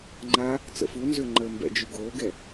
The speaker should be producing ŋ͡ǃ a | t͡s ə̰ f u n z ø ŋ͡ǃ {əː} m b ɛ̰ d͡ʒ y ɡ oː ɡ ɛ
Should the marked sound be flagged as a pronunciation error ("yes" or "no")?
no